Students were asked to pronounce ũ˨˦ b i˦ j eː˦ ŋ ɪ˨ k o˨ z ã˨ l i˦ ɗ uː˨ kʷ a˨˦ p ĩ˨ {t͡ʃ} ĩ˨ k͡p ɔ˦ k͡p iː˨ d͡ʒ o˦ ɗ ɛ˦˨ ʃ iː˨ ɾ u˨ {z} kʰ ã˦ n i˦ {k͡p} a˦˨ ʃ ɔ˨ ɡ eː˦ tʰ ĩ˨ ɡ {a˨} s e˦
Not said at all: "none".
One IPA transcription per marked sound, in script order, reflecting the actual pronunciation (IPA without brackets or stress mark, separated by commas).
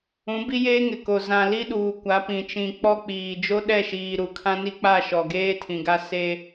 t͡ʃ, none, k͡p, a˦